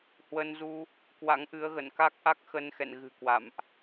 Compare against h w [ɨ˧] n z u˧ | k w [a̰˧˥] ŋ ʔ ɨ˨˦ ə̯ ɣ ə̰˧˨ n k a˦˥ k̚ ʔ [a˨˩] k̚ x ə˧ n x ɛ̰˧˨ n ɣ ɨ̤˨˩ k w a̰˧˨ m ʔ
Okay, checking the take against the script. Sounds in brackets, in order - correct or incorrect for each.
incorrect, correct, incorrect

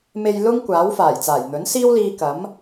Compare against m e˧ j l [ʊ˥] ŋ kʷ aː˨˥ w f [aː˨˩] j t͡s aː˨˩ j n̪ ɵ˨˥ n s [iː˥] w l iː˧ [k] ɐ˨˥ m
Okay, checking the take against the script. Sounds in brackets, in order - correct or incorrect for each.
correct, correct, correct, correct

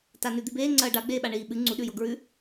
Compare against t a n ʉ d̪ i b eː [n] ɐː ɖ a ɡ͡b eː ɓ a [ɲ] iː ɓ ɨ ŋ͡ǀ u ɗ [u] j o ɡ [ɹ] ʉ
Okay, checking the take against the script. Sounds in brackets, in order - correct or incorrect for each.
incorrect, incorrect, incorrect, correct

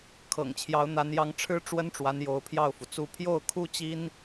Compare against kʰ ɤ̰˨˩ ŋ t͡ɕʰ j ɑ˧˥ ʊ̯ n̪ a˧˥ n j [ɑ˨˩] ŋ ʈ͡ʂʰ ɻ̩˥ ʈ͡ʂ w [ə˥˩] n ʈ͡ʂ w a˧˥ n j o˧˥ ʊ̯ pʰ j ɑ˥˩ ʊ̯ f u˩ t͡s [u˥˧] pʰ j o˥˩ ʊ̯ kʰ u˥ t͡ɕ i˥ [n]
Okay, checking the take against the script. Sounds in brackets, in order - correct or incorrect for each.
incorrect, incorrect, correct, correct

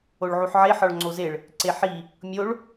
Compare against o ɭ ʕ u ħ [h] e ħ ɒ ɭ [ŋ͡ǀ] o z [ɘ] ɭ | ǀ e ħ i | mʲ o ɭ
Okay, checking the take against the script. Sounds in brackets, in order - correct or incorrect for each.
incorrect, correct, incorrect

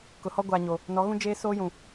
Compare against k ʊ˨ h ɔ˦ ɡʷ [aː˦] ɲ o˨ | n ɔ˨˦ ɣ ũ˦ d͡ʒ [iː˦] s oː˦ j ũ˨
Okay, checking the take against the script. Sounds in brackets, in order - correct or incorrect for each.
incorrect, incorrect

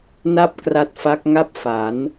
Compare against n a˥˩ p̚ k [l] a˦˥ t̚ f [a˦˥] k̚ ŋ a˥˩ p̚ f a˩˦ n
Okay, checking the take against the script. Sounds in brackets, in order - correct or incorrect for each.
incorrect, correct

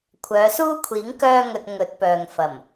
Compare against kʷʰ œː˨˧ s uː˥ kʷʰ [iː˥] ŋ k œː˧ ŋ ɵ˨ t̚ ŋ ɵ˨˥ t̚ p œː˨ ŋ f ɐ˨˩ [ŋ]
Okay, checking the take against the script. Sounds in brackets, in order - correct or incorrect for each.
incorrect, incorrect

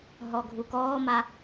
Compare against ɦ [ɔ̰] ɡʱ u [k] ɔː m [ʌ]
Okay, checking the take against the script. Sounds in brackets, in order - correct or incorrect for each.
incorrect, correct, incorrect

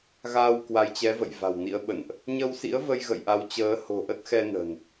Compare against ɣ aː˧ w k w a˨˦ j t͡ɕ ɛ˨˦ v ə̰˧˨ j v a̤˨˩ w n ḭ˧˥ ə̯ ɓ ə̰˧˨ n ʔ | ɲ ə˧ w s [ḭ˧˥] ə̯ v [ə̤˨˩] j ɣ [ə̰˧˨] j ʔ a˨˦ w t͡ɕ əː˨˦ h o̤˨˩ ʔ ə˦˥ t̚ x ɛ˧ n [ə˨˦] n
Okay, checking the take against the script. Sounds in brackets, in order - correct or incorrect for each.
correct, incorrect, correct, incorrect

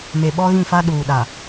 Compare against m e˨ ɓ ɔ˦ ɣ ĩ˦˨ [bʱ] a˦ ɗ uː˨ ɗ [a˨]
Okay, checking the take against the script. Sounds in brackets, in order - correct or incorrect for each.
incorrect, correct

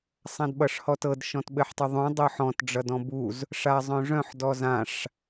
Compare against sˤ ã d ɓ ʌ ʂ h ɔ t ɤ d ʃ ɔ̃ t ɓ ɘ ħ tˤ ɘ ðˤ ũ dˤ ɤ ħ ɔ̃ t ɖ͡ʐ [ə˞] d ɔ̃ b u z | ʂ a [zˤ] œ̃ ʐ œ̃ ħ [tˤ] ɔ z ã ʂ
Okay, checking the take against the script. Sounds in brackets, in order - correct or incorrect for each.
incorrect, correct, incorrect

